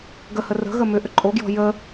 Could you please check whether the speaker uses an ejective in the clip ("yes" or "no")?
yes